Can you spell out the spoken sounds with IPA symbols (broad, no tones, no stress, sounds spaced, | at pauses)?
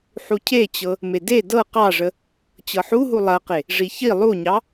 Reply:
ħ u cʰ e t͡ɕ ɤ | m e d e d ɤ q ɑ ʐ ə | t͡ɕ ɤ ħ u ɦ u lˠ ɐ q e | ʐ i ç i lˠ u ɲ ɑ